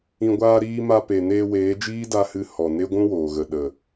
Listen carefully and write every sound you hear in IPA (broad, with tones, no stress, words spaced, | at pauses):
ĩ˨ɡʷaː˧ɾiː˧ma˧ pe˨ neː˧weː˨˦d͡ʒiː˦da˧ hɨ˧ hɔ˨ ne˦ɡʷũ˦woː˨ɣə˨ ɗə˨